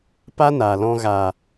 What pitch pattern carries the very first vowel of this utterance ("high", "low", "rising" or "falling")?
high